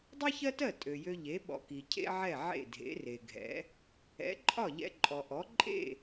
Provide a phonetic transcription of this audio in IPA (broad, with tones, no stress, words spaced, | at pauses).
dˤi˥çɜ˥tɜ˥˩ tʼø˩jø˧ ʎe˩˥ ɓɔ̰˧ki˩cʰḛ˥ʕɛ˥˩ ʕḛ˥˩dʱḛ˩˥re˩ɡʱɛ̰˩˥ | ɛ̰˩˥ǃʼɒ˥˩ʎɛ̰˧ ǃʼɔ˩ʔɔ˩˥ ǃʼḛ˥˩